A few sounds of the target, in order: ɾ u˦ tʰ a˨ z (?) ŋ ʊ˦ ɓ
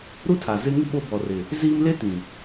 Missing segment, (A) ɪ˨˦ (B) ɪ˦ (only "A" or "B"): B